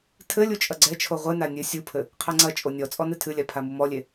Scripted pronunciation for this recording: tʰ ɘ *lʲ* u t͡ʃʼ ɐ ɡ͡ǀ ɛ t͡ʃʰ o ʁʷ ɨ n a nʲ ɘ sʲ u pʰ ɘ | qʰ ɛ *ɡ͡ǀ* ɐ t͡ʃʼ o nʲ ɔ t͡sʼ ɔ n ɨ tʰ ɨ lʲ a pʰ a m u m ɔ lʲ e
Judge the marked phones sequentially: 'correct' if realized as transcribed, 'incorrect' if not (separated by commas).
correct, incorrect